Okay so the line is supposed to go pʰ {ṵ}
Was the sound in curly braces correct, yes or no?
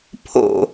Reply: no